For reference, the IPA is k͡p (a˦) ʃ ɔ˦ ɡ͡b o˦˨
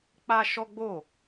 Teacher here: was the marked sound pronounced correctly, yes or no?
yes